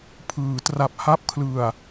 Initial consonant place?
labial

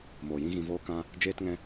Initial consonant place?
labial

